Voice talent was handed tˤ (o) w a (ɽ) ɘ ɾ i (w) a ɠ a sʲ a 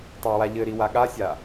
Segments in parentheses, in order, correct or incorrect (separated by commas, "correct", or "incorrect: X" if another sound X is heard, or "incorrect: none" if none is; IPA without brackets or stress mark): correct, incorrect: ʎ, correct